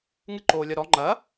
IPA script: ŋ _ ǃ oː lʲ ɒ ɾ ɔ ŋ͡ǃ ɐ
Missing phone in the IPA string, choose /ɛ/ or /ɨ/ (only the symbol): ɨ